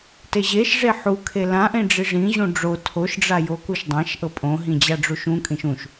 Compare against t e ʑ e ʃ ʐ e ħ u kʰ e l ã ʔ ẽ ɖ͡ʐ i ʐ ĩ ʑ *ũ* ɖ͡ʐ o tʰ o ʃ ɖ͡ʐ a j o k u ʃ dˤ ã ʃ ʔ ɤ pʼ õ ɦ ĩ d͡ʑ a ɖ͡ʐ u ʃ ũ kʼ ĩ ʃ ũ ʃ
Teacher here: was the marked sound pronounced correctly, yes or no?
yes